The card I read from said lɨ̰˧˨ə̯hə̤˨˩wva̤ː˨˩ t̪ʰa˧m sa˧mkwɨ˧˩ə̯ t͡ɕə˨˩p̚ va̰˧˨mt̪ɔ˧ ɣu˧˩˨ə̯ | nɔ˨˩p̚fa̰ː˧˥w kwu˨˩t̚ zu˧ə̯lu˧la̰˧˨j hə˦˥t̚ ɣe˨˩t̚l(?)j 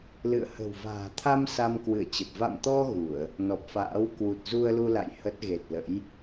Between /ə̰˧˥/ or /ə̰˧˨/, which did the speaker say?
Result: ə̰˧˥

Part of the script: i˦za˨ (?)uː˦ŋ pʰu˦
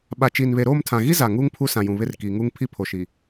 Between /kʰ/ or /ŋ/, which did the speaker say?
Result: ŋ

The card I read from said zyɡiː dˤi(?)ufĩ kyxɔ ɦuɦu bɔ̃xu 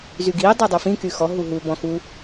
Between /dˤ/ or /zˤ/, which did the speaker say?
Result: dˤ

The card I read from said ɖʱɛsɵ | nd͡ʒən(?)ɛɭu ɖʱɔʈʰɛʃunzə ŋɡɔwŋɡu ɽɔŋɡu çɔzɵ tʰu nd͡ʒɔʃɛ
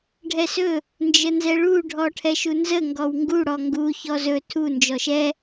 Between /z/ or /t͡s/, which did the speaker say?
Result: z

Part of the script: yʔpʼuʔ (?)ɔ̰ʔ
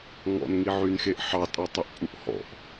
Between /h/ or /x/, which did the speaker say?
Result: h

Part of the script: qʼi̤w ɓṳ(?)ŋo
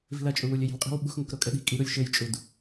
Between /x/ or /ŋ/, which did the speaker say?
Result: x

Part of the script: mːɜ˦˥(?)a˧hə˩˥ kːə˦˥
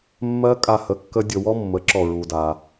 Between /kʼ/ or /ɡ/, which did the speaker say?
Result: kʼ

